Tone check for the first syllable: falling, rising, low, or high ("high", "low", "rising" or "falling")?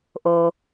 low